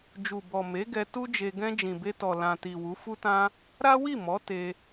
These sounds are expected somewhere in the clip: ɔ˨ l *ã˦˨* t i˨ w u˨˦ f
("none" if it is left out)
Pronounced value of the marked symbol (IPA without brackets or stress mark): ã˨